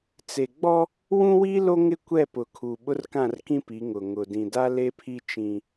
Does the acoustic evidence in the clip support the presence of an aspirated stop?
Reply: yes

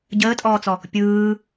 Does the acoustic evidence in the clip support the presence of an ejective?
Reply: yes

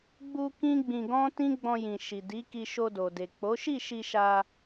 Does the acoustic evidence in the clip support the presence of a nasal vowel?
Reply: yes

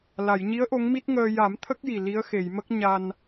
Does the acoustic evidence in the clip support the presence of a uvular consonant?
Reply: no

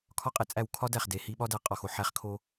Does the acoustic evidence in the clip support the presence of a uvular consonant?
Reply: yes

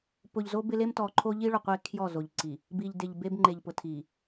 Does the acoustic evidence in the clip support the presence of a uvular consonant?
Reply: yes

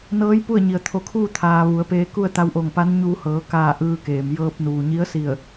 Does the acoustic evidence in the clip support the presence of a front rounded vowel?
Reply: no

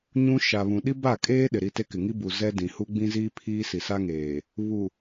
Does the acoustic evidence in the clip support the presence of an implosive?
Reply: yes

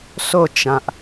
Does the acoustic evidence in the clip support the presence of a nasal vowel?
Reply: yes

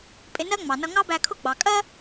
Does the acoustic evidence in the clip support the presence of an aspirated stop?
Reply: yes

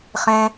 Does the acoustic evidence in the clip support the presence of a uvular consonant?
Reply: yes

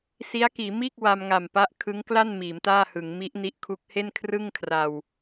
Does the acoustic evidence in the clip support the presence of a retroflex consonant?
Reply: no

